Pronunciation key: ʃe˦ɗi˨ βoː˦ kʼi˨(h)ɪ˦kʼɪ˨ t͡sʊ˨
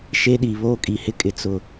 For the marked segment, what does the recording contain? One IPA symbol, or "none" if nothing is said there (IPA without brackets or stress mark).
h